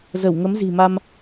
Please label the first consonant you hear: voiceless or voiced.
voiced